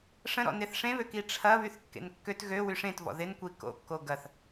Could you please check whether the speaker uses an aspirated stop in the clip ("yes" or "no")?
yes